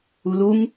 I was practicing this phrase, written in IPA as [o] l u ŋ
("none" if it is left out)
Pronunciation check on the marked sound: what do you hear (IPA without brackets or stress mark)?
u